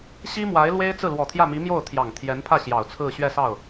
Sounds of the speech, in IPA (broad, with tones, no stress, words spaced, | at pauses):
ɕi˥mwa˧˥ɪ̯lwe˥ɪ̯ t͡sɹ̩˥˩lwɔ˨˩t̪ʰjä˥˩mi˧˥ mjo˥˩ʊ̯t̪ʰjɑ˨˩ŋt̪ʰjɛ˧˥npʰä˥˩ ɕjɑ˨˩ʊ̯t͡sʰɹ̩˥˧ ɕɥɛ˥˧sɑ˥˩ʊ̯